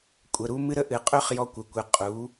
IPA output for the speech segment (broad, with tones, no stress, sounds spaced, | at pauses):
kʷʼ ə˩˧˩ ɾ u˦ m ɨ˦ ɾ ə˦ ʔ ɨ˩˧ qʼ ø˦ χ j ɔ˦ kʷ ə˩˧˩ kʷ ɨ˩˧˩ qʼ u˩˧